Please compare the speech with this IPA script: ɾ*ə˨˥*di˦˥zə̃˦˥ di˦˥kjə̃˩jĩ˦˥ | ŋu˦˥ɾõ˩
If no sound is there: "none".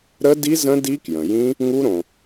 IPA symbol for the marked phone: ə˦˥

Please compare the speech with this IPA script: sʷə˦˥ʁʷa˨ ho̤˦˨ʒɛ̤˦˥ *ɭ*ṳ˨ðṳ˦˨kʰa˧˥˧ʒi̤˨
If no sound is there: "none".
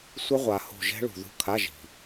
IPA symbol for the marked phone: ɭ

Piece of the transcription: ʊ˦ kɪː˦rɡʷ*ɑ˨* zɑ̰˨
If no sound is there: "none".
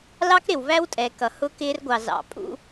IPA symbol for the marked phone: ɑ˨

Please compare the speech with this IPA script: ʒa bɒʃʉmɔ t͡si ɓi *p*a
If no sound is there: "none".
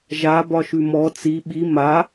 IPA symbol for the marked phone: m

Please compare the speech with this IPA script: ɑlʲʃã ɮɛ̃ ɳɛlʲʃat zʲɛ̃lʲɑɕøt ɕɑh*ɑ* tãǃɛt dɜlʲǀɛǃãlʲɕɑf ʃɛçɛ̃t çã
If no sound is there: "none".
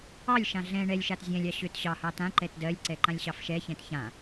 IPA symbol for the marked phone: ɑ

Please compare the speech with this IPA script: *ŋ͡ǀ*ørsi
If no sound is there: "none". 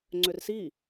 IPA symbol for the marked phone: ŋ͡ǀ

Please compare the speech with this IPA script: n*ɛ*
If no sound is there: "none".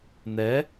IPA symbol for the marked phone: ɛ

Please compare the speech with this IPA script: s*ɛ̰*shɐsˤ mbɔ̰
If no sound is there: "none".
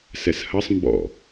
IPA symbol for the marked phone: ɛ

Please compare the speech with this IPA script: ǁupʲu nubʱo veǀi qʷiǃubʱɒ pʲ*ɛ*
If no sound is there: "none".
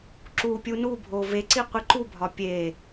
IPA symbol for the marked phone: e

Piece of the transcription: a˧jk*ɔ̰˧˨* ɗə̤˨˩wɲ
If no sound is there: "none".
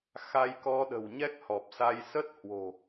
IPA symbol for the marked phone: ɔ˧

